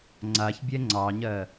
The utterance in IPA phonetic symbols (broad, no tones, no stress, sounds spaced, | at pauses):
ŋ͡ǀ a ç bʲ ɛ ŋ͡ǀ ɑ ɲ ɜ